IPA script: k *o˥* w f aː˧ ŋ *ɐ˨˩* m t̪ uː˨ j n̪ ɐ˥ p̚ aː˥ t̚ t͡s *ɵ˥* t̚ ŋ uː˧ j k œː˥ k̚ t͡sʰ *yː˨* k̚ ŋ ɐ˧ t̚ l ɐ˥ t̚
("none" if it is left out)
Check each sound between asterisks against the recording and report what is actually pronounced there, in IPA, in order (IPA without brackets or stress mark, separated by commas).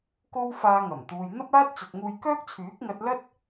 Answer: o˥, ɐ˨˩, ɵ˨, yː˨˥